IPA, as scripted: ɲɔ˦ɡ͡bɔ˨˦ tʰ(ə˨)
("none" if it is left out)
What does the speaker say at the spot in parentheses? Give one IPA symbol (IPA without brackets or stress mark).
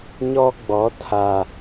a˨